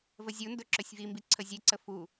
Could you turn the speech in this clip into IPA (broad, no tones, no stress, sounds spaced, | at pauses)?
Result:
v ə zʲ u n d ɵ ǁ ɵ sʲ v i m b i ǀʰ ə zʲ e ǀ ə f u